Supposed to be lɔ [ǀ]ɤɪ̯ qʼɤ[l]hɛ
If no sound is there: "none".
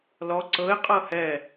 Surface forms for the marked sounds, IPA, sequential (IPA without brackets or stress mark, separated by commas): ǀ, none